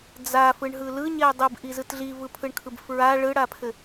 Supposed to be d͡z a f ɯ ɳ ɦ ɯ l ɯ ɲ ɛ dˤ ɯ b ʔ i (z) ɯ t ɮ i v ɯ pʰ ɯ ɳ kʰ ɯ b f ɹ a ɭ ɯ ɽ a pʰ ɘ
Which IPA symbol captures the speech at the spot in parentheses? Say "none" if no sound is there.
z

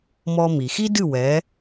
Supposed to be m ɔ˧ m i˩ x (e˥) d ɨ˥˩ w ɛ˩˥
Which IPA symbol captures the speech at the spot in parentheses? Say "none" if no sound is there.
i˥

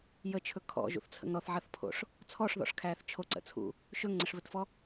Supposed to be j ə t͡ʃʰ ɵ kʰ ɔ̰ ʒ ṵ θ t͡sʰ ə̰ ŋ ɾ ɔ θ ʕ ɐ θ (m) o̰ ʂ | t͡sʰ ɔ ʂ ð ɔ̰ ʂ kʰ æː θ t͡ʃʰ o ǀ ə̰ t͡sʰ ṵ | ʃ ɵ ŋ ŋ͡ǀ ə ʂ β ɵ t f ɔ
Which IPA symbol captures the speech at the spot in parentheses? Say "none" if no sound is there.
pʰ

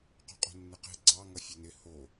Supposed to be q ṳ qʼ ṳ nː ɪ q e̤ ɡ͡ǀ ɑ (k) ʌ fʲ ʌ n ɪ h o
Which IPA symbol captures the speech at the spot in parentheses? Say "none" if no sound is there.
ŋ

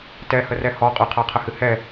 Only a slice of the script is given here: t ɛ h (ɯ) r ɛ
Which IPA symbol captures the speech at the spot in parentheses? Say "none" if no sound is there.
ə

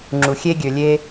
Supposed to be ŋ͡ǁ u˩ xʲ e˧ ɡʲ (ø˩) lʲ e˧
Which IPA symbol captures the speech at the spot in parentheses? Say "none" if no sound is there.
ø˩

